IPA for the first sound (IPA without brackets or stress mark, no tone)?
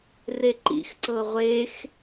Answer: r